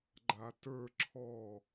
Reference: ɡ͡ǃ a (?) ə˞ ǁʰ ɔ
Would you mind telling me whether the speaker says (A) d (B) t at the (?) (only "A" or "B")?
B